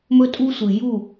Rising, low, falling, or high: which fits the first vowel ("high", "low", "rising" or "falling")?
high